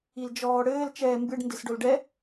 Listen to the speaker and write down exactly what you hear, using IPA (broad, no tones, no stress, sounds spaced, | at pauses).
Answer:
i l d͡ʒ ɔː ɽ ɘː l t͡ʃ ɛː m b ɨ ɖ n d ɨ s ɖ o l ɖ ɛ